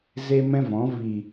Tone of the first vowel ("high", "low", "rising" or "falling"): high